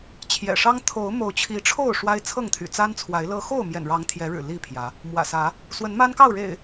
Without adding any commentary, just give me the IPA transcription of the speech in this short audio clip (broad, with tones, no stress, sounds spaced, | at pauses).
t͡ɕʰ j ɛ̰˨˩ ʂ ɑ˦ ŋ t̪ʰ o˨˦ ʊ̯ m o˨˦ ʊ̯ t͡ɕʰ i˨˦ ʈ͡ʂʰ o˥˨ ʊ̯ ʂ w a˦ ɪ̯ t͡sʰ ɤ˥˨ ŋ t̪ʰ y̰˨˩ t͡s a˦ n t͡sʰ w a˨˦ ɪ̯ l ɤ˦ x o˥˨ ʊ̯ m j ɛ̰˨˩ n ɻ ɑ˨˦ ŋ t̪ʰ j ɛ˨˦ ɻ ɻ̩˨˩ l i˥˨ pʰ j ä˨˦ | m w ä̰˨˩ s ä˨˦ | s w ə˨˦ n m a˦ n k ɑ˥˨ ʊ̯ ɻ ḛ˨˩ ɪ̯